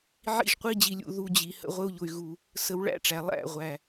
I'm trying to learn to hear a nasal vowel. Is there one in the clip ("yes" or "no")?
no